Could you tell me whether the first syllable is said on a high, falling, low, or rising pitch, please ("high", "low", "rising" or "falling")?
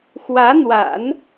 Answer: rising